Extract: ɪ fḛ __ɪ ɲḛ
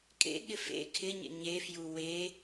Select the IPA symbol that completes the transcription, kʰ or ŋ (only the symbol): kʰ